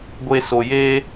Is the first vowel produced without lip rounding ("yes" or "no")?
yes